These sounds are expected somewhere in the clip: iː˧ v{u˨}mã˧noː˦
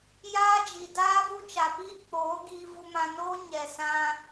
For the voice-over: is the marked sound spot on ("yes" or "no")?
no